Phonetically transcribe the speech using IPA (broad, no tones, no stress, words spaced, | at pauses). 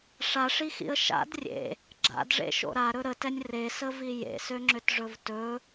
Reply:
ʂaʂixḭə̯ ʃa̰d rʲḛ | ɡ͡ǁa̰dʐḛʃo̰ ɾaɾɵ ɾətɛnʲ resəvi jḛsøŋ͡ǁʏtʐɵv tɵ